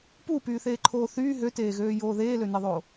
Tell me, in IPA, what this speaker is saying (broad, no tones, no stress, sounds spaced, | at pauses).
p u p yː θ eː ǃʰ oː θ yː ɦ ø t eː ɣ øː j oː ð eː l ø n e ðˤ oː